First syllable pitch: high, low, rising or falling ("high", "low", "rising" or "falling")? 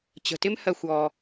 low